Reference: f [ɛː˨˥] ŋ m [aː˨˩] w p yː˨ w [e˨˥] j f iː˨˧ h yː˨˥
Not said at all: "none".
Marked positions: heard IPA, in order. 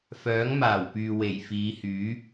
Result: œː˨˥, aː˨˩, e˨˩

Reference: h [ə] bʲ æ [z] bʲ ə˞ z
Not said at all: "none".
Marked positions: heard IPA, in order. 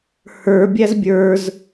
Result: ə˞, z

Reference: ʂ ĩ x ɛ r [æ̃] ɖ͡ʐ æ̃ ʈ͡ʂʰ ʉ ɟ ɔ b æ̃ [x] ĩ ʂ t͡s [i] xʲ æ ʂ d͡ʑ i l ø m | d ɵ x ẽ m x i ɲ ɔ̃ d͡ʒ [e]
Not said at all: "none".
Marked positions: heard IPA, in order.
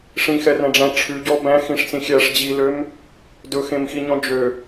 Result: æ̃, x, ĩ, ø

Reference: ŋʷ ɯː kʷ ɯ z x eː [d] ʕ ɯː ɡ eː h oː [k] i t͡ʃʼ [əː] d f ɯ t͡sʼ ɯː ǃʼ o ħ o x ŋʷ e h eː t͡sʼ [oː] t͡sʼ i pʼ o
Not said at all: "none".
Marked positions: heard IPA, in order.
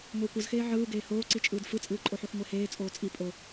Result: none, ǀ, ɯː, oː

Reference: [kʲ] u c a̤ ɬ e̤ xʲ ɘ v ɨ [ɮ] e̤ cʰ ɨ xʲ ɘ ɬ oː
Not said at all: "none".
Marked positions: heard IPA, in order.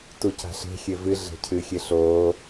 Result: t, ɮ

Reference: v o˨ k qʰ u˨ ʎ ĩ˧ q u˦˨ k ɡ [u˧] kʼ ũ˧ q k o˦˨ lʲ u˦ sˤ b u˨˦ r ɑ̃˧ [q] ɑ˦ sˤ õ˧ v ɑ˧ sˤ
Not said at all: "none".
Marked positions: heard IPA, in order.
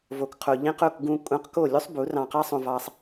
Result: ũ˧, q

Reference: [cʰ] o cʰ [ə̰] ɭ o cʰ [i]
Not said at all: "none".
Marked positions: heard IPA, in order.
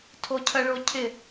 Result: tʰ, ə, ɪ

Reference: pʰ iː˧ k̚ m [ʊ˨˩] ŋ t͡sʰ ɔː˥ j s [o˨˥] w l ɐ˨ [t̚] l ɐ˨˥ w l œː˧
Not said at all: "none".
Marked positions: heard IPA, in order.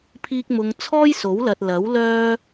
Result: ʊ˨, o˨˥, t̚

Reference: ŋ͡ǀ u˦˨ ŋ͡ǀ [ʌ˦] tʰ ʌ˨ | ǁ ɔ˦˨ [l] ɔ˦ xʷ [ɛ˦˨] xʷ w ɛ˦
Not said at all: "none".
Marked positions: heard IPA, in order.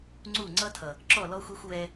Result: ʌ˦, l, ɛ˦

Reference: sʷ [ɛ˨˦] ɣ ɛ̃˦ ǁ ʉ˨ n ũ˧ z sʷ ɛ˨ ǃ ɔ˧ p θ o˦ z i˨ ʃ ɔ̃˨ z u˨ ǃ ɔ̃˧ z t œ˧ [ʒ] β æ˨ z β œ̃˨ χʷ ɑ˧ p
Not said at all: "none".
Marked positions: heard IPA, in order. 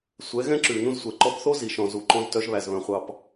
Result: ɛ˨˦, ʒ

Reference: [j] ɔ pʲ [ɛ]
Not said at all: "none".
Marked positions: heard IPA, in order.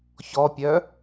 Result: ç, œ

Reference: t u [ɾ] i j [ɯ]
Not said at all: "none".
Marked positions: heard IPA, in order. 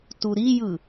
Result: ɾ, ɯ

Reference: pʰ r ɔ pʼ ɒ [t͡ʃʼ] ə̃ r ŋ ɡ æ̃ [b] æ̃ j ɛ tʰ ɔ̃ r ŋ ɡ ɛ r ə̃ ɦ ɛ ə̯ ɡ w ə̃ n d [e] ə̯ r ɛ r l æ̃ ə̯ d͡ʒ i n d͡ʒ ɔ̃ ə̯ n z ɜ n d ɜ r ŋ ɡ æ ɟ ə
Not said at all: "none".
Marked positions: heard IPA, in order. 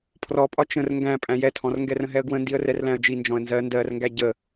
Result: t͡ʃ, pʼ, i

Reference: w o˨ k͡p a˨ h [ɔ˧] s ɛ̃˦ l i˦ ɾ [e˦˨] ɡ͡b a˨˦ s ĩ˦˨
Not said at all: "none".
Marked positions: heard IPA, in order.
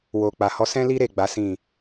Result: ɔ˧, e˦˨

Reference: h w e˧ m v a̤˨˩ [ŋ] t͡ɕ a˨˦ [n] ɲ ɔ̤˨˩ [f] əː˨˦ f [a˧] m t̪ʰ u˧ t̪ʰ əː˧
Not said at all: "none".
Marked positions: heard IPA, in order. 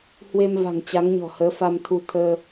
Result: ŋ, ŋ, h, a˧

